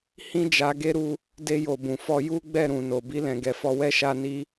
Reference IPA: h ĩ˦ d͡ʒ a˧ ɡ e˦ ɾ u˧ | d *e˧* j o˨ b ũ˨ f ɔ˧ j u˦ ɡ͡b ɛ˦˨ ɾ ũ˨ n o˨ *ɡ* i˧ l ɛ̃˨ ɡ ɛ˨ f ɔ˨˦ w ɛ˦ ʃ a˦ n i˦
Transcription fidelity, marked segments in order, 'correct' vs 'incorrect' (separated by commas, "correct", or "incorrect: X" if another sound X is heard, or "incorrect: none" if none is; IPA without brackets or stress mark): correct, incorrect: b